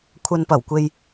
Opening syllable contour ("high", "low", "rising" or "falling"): low